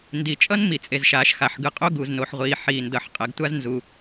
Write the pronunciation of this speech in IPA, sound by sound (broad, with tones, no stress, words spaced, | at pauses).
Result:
ndi˩t͡ʃʼʌ˥n mi˩t͡sʼe˩zʃaː˩ʃ xa˩ħɡɯ˩qʼo˥ ɡu˩zno˩ħʁʷiː˩ ħiː˩ndʌ˩ħ qʼɛ˩ɡtʷa˥znzu˩